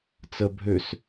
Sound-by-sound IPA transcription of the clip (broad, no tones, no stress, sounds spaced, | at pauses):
t͡s ə bʱ ø s